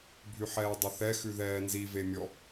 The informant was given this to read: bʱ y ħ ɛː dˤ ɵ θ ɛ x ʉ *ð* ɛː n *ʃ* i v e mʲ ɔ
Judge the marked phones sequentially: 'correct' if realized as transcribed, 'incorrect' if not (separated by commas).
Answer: correct, incorrect